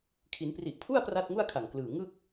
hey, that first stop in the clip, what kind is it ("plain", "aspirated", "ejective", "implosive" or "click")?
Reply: aspirated